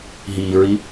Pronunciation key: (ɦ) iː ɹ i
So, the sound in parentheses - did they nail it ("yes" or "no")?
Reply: yes